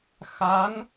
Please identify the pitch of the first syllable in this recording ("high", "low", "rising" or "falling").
rising